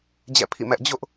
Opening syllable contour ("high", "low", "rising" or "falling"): falling